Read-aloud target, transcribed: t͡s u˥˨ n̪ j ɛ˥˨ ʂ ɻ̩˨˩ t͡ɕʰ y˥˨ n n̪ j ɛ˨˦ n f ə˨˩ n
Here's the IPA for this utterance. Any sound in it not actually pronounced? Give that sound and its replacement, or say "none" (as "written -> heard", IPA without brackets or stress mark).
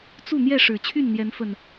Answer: none